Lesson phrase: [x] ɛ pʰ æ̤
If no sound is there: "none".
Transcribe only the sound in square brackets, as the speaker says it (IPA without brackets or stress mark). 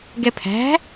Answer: ɡ